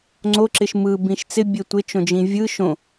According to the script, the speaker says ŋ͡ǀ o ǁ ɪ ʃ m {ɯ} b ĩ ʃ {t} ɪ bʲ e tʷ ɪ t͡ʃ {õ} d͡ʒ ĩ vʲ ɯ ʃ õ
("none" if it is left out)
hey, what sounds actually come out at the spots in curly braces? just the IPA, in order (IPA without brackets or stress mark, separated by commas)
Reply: ɯ, t͡s, õ